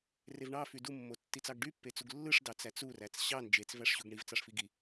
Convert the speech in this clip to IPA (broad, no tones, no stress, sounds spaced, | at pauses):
r e v ɳ ɑ f y d u mː o tː i t͡s ɑ ɡ ɖ y pː e t͡s u ɡ lː ɯ ʂ d ɑ t͡s æ t͡s u r æ t͡s ɕ ɑ n d͡ʒ e t͡s v æ ʂ ɕ u ɡ ɳ i v t͡s ɑ ʂ f i ɡ i